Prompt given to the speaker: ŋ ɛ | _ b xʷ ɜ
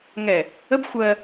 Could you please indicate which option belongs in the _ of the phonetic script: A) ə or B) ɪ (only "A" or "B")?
A